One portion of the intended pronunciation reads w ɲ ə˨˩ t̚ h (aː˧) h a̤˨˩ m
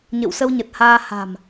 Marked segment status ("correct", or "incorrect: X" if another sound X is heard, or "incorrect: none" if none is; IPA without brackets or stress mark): correct